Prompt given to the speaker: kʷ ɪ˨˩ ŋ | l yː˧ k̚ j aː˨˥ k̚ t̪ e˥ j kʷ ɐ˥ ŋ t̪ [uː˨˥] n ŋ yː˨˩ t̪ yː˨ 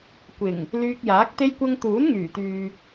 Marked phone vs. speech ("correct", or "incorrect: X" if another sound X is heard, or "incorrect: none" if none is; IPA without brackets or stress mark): correct